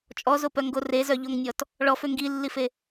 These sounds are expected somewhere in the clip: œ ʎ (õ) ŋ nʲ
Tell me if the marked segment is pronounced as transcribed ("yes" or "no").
no